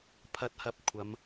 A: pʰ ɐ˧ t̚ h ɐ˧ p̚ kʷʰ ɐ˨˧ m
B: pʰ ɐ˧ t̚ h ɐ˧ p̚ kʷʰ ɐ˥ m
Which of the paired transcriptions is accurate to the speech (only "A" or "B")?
A